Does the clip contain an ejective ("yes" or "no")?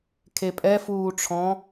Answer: yes